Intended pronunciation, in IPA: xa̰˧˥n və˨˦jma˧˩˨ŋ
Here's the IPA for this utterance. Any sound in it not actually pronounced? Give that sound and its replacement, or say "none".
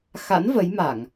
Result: none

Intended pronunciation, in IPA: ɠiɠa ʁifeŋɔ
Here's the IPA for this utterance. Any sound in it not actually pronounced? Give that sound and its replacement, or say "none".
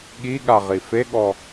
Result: ŋ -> ɠ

